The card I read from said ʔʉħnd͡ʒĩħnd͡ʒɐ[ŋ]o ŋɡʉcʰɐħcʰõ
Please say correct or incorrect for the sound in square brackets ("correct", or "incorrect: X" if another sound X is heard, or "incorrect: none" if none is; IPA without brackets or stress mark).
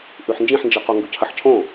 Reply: incorrect: q